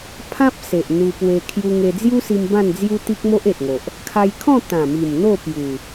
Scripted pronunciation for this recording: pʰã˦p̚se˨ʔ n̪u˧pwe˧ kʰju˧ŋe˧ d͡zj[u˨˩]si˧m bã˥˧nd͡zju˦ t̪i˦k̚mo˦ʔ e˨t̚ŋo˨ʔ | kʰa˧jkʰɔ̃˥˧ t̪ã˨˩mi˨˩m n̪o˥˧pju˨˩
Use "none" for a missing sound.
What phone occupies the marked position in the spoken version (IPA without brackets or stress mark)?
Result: u˦